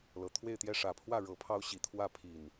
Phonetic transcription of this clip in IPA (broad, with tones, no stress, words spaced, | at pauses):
lɤ˨˩t̪ʰwe˥˨ɪ̯t̪jɛ˥˨ ʂä˨˩pʰwä˥˨ ɻɤ˨˦pʰɑ˦ʊ̯ ɕi˨˦t̪ʰwä˥˨ pʰi˨˩n